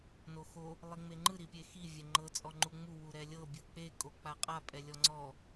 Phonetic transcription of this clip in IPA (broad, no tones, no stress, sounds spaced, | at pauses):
n o x o | lˠ i ŋ͡m e ŋ͡ǃ ɯ ɾ i pʲ e x i vʲ ɛ ŋ͡ǃ ɤ t͡sʼ ɔ ŋ͡ǃ u ŋ͡m u w u ɾ ɛ lʲ ɤ bʲ ɯ k͡p e kʼ o k͡p a qʼ a pʼ ɛ lʲ ɔ ŋ͡ǀ ɔ